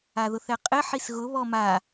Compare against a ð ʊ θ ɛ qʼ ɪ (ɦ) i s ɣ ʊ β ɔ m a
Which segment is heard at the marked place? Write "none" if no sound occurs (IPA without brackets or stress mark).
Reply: ħ